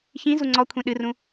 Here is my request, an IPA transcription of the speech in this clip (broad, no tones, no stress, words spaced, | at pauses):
çĩ zuŋ͡ǀɔkʷʰĩ ɗɨrũ